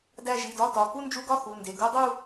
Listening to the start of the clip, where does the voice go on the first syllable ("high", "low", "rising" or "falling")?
falling